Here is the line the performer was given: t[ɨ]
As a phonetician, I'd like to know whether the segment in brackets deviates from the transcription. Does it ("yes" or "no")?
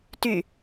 yes